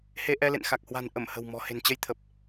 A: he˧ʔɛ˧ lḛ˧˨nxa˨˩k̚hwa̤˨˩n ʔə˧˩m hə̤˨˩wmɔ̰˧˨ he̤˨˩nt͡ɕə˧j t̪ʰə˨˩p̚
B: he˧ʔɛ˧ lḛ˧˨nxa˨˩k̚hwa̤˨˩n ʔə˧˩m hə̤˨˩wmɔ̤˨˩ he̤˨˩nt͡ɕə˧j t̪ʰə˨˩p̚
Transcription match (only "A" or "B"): B